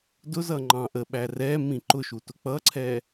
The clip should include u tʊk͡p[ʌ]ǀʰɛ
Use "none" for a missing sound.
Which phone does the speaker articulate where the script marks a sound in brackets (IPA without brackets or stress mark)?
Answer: ʌ